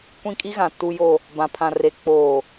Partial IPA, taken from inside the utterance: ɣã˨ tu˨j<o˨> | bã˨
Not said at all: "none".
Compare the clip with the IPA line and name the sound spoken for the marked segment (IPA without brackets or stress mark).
o˨